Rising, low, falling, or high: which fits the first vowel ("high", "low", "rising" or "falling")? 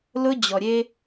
high